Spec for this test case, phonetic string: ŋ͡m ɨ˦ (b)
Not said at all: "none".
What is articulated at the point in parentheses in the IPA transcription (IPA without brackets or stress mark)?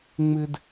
d